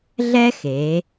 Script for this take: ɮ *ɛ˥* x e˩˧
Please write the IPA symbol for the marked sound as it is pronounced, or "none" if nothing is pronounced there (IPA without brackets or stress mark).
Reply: ɛ˥